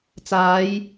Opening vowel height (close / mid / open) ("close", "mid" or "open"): open